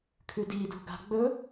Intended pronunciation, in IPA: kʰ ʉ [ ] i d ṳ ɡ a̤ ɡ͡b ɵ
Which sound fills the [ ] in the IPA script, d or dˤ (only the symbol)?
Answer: d